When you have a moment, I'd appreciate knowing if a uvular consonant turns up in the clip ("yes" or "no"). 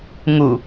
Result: no